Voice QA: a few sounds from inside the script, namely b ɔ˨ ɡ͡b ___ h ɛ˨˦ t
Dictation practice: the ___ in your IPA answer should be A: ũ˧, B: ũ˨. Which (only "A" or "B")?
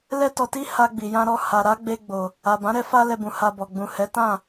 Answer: B